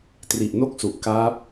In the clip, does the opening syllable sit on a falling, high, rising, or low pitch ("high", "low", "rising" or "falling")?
low